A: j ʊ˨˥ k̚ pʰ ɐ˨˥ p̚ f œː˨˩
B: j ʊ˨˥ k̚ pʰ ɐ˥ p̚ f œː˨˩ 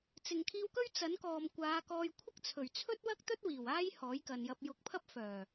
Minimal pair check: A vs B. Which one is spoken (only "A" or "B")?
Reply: B